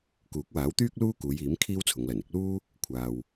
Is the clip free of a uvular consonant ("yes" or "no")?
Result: yes